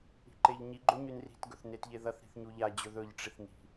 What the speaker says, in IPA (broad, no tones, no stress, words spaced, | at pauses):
i̤ǃeʎɲi ɡ͡ǃoɲʉnri̤t ɡɵθnetʎeðɐθ ɾi̤θɲuʎa d͡ʑɵðɵʎ ʈ͡ʂiθni̤